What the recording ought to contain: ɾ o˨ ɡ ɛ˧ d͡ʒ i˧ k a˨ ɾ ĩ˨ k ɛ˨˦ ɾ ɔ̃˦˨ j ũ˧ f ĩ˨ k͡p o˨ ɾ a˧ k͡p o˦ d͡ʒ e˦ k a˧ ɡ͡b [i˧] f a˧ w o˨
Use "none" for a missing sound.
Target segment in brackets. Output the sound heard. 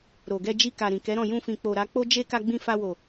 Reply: ĩ˧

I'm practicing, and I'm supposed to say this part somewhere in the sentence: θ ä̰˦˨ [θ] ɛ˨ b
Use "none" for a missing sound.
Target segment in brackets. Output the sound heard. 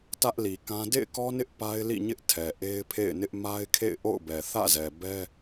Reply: z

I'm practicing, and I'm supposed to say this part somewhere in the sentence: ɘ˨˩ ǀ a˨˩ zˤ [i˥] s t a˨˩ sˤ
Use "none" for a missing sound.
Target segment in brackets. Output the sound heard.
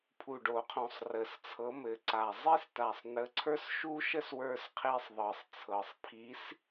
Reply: i˥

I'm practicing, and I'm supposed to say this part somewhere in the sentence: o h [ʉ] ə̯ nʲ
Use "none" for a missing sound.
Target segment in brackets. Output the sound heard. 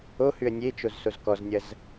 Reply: ʉ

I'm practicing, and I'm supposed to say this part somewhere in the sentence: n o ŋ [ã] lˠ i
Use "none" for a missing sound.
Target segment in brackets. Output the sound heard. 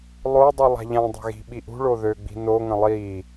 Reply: ə̃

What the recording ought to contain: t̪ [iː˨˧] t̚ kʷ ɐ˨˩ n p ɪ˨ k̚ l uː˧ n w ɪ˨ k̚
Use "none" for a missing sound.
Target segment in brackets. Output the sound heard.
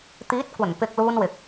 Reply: iː˨˥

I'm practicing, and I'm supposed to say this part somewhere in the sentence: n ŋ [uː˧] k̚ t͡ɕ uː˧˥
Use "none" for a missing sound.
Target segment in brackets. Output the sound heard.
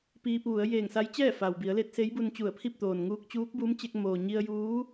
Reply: uː˧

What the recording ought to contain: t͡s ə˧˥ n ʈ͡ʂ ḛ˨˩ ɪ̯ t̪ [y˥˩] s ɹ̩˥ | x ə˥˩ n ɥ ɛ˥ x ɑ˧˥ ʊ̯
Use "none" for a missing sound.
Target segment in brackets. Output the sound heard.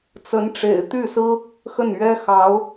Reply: y˥˩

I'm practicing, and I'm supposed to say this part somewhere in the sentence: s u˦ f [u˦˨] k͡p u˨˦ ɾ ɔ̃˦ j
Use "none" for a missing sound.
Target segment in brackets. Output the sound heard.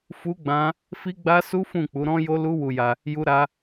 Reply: ũ˦˨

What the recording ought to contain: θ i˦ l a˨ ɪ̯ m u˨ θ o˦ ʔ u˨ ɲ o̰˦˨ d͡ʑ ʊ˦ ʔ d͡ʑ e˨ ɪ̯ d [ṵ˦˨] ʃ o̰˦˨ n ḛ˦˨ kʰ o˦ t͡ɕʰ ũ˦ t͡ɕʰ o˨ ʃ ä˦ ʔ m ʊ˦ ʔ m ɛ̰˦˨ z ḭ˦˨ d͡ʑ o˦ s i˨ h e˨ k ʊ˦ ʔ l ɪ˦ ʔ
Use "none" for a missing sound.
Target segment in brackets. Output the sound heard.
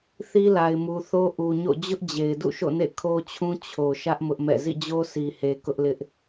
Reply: ṵ˦˨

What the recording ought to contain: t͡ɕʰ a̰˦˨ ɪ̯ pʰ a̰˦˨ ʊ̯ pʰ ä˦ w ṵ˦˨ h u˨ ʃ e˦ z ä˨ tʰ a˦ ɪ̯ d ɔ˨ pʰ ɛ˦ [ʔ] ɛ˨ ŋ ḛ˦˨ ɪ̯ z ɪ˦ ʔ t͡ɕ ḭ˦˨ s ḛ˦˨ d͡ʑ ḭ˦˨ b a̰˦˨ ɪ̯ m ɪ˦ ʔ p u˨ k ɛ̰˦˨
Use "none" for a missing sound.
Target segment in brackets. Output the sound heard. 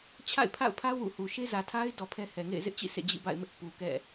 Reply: h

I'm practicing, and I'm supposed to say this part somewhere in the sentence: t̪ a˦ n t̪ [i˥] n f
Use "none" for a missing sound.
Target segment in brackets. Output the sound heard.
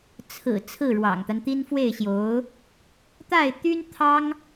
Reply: i˥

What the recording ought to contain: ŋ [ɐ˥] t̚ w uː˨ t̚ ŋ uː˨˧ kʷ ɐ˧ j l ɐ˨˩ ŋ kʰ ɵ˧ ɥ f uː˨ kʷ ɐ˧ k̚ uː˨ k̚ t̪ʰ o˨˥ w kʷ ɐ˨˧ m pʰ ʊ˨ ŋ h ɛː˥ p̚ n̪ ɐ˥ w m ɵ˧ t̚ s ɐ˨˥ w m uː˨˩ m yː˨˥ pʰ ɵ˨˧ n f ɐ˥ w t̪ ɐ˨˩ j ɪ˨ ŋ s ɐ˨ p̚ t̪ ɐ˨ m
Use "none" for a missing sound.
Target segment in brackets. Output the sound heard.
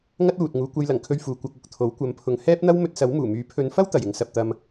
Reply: ɐ˥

